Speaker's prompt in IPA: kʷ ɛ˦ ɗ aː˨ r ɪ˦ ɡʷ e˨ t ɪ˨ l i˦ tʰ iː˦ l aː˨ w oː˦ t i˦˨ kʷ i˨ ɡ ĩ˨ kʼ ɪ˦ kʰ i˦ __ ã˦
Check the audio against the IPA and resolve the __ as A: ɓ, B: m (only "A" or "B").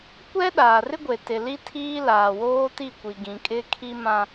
B